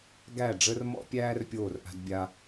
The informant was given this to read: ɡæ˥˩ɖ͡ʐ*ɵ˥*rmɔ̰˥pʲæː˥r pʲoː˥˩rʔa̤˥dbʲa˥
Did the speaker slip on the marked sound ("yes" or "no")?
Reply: yes